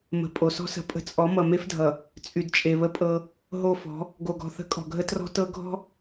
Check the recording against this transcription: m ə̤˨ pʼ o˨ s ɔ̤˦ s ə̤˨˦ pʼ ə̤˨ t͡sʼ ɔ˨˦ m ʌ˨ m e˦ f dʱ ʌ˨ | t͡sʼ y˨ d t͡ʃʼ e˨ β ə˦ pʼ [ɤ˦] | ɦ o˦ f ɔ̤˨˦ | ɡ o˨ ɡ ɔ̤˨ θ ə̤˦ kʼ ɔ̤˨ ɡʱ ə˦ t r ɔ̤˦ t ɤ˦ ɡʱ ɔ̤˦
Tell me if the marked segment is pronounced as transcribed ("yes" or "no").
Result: yes